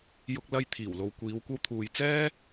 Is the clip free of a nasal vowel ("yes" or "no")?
yes